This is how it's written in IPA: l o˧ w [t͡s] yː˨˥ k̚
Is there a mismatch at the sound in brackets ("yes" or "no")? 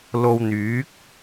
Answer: yes